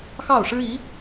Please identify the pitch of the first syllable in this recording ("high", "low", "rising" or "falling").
falling